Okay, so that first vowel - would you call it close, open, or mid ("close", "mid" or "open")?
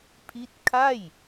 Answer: close